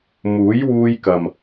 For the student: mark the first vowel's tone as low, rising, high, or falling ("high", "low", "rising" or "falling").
rising